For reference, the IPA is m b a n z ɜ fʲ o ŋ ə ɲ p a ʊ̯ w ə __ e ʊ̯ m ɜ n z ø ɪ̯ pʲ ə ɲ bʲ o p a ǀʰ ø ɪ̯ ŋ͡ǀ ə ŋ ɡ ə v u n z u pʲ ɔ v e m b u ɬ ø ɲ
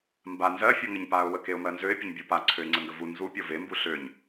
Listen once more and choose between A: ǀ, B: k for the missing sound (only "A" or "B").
B